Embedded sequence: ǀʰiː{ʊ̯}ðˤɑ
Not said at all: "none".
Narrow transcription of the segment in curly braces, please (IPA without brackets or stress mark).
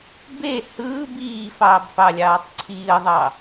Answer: ə̯